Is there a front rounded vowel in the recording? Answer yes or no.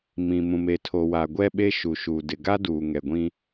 no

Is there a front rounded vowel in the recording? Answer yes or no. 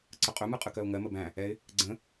no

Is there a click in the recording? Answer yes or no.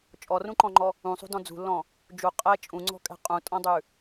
yes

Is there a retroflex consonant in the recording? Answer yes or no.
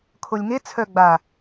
no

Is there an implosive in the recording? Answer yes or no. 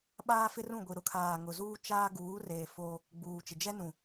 yes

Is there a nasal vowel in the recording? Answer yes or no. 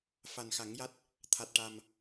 no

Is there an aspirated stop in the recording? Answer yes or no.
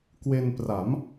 no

